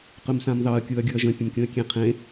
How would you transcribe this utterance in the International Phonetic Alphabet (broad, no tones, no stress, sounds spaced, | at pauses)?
q ʏ m s ã m ð ɑ ɐ̯ kʲ u ɐ̯ ɡʲ u ɐ̯ ʒ ə̃ pʲ ə̃ m kʲ ũ ɐ̯ kʲ ẽ qʰ ẽ